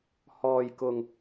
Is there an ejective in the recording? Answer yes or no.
no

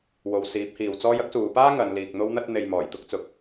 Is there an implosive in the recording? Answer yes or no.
no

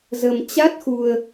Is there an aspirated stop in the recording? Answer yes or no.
no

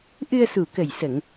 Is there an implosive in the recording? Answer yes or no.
no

